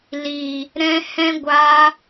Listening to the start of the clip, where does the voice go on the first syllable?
low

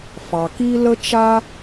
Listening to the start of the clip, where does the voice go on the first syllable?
low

